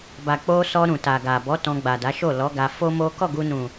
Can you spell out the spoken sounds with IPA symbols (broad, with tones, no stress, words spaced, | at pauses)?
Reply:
ba˨k͡po˧sɔ˧ ɾũ˨ta˨ɡa˨bɔ˨˦ tɔ̃˧ɡ͡ba˨da˨˦ʃo˦˨ lɔ˨˦ɡa˧fo˦mo˦ kɔ˦˨ɡu˧nũ˨